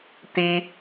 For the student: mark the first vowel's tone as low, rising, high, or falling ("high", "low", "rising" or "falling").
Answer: high